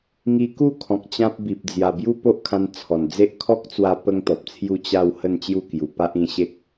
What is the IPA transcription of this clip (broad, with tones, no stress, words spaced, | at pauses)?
ŋi˧ku˥˧kʰɔ̃˨k̚ t͡ɕã˦p̚ bi˨p̚ d͡zja˨˩ bju˦po˦ʔkʰã˧n t͡sʰɔ˨˩n d͡ze˦ʔ kʰɔ˦k̚t͡swa˧ pə˦ŋt̪ɔ˨p̚t͡sʰju˥˧ t͡ɕa˥˧w hə˥˧nt͡ɕju˥˧kju˨˩ pa˦ʔĩ˧ɕe˦k̚